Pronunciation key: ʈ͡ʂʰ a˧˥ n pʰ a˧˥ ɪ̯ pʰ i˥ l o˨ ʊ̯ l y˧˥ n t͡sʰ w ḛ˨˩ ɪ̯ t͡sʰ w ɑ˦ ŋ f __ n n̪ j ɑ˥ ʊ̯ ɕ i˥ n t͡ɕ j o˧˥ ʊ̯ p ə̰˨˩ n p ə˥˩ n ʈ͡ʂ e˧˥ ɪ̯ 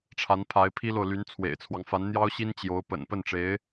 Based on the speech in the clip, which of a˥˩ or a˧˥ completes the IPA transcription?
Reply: a˧˥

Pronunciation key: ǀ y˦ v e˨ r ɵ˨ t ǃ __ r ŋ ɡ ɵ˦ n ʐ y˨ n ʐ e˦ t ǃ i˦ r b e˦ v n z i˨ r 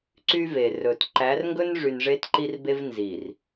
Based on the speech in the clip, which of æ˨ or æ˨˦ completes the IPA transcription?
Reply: æ˨˦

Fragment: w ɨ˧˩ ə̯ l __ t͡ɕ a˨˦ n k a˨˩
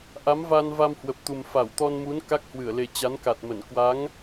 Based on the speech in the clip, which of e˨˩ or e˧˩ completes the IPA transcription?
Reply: e˨˩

